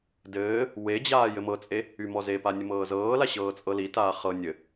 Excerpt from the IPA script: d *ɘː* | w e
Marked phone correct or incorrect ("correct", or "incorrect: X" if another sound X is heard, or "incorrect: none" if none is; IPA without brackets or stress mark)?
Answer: correct